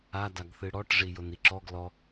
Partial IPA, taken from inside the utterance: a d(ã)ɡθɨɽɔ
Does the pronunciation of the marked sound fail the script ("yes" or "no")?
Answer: yes